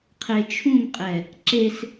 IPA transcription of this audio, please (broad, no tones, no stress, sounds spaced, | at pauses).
qʰ e t͡ʃʰ ũ m qʼ ɛ | ǁ e s